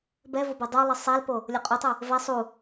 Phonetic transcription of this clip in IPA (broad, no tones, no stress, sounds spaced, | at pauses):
b ɛ v o b ɛ dˤ u lˠ i sˤ ɛ l p o | lʲ o qʼ u tˤ ɯ | v ɛ sˤ u